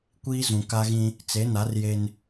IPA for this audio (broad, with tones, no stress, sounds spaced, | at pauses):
kʷ iː˦ z ũ˨ k a˦ ɣ ĩ˦ | t͡s e˨˦ n a˨˦ r j e˦ n